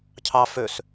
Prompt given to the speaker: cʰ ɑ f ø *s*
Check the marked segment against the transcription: correct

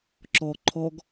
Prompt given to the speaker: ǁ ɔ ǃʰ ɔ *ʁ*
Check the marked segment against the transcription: incorrect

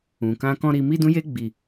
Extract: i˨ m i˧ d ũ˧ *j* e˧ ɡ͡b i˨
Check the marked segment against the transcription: correct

